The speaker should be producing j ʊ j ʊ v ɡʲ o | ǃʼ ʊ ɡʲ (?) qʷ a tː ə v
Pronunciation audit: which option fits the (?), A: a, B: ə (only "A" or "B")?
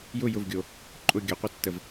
B